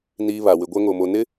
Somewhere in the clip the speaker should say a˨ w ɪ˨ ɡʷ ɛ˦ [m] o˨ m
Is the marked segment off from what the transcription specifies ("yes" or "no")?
yes